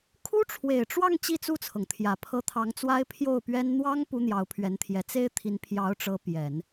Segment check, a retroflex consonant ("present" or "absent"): present